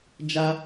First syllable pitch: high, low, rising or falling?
high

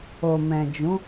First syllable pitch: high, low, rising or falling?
low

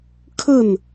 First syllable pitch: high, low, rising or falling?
falling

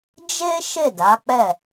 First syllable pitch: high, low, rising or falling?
high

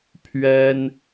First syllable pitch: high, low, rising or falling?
high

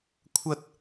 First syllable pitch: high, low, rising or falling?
high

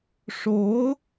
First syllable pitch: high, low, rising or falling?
rising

